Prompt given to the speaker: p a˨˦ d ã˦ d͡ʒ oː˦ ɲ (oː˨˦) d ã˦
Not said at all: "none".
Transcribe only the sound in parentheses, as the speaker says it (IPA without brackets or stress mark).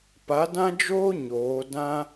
oː˨˦